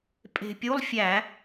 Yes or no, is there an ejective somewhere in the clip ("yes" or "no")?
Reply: yes